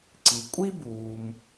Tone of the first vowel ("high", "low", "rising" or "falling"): low